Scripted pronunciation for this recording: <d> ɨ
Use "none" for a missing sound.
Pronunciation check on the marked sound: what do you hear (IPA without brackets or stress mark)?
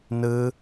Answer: n